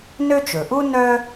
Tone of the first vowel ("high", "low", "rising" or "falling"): high